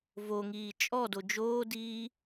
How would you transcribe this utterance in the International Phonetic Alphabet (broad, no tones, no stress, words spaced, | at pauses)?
voŋiː t͡ʃʼɔdo d͡ʒoːdiː